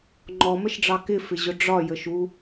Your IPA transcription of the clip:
ŋ͡ǃ ɔ m ə ʃ ɖ͡ʐ ɑ k ɪ f ɪ ʑ ʊ ɖ͡ʐ ɒ j ə ʃ u

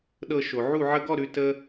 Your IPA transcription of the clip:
ɗ ɤ˧ ʃ o˨ ʕ u˦˨ ʕ ə˧ ɡ ɔ˦˨ ɾ ʉ˨ t ə˦

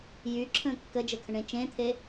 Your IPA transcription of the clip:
j y ǁʰ ə̃ː kː ə d͡ʒ ə kʰ ə̃ ɳ ẽ t͡ʃ ẽ t̪ʰ e

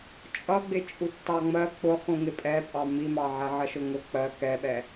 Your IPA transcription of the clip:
t͡ʃʼ ʌ ɡ͡b ɪ t͡ʃʼ u tː ɑ ŋ͡m ɜ k͡p ʊ χ ũ ŋ ɪ pʼ ɛ pʼ ɑ m i m ɑ ʕ ɛ ʕ ʌ ʃ ʊ ŋ ʊ k͡p ɜ k ɛ ɓ ɛ

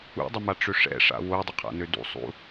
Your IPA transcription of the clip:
ṵ dˤ ə m a ʈ͡ʂ ø ʂ ɛ̰ ʂ a̰ w o dˤ ə qʰ a̰ n ø d ṵ sˤ ṵ

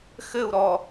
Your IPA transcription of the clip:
x ɘ u̯ ɾ ɔ

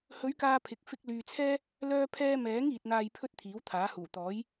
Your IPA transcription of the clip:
h ɵ˨˧ ɥ k aː˨ pʰ ɪ˨ k̚ f ɪ˧ k̚ l yː˨ t͡sʰ ɛː˥ | l œː˥ pʰ ɛː˥ m ɛː˨˥ ŋ iː˨ t̚ n̪ aː˧ j pʰ ɵ˥ t̚ t̪ʰ iː˨˥ w t̪ʰ aː˨˥ h uː˨˩ t̪ ɔː˨˥ j

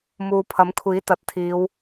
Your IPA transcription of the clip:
m uː˨ pʰ ɐ˨˥ m kʷʰ iː˨˥ t̪ ɐ˨ t̚ t̪ʰ iː˨˧ w

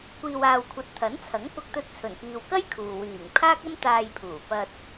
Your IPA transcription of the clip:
kʷ iː˨ w aː˨ w kʷʰ ɐ˨ t̚ t̪ʰ ɐ˨˥ n t͡sʰ ɐ˨˥ ŋ p ʊ˧ k̚ t̪ ɵ˧ t̚ t͡sʰ ɵ˨˩ n k iː˨ w k ɐ˥ j kʰ uː˨ w iː˨˩ ŋ pʰ aː˥ k̚ ɐ˥ m t̪ aː˧ j pʰ uː˨˩ p ɐ˧ t̚

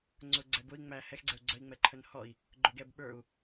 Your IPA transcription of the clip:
ŋ͡ǀ ʊ ɡ͡ǀ ɛ b ʊ i̯ ŋ͡m æ h ɛ x ɡ͡ǀ ɛ u̯ ɡ͡ǀ ə i̯ ŋ͡m ɛ ǃʰ ə n h ɔ i̯ | ɡ͡ǃ ʊ ɡ ɛ b ɓ ə˞ u̯

